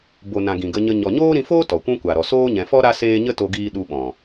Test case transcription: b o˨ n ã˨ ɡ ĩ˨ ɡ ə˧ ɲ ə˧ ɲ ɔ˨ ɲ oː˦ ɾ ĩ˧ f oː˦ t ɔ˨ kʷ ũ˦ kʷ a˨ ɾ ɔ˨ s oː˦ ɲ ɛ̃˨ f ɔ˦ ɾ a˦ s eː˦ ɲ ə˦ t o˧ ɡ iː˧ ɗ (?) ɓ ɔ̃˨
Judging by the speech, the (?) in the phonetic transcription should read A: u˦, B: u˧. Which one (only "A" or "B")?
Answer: B